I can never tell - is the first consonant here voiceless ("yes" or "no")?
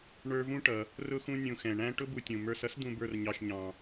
no